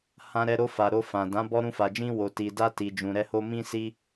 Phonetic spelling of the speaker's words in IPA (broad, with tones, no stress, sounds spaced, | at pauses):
h ã˧ ɾ ɛ˧ ɾ o˧ f a˨ ɾ o˧ f ã˨ d ã˨˦ b ɔ˧ ɾ ũ˧ f a˨ d͡ʒ ĩ˧ w o˨ t i˨ d a˧ t i˨ d͡ʒ ũ˨ ɾ ɛ˧ h o˧ m ĩ˧ s i˧